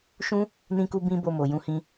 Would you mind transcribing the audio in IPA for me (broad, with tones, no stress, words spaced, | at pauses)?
ʃũ˦ | nĩ˦ku˦ bĩ˦ bo˧mo˨ jũ˧hĩ˧